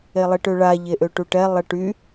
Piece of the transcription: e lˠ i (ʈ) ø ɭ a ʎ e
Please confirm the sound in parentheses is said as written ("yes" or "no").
yes